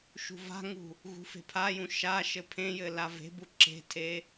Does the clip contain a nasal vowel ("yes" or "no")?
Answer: yes